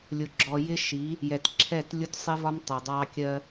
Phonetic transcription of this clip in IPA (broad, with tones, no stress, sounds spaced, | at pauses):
lʲ ʊ˨ ɡ͡ǁ ɔ˨ j ɪ˦ ʃ i˨˦ | j ɛ˨ t ǁʰ ɛ˦˨ t lʲ ʊ˦ t sˤ ɪ˦ v ɒ˦ m tˤ ɪ˨ dˤ ɑ˦ kʲ ɜ˦